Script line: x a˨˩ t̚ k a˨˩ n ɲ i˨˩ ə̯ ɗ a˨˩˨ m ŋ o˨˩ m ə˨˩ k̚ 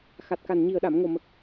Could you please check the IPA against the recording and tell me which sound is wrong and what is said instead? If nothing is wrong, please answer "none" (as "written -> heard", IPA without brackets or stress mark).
none